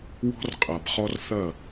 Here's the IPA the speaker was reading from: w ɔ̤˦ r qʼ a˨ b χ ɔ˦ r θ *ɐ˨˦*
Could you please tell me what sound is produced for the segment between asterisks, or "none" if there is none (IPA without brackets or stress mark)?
ɐ˦˨